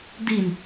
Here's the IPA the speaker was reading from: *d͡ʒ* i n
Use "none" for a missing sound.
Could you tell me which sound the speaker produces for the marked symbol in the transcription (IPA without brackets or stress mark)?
d̪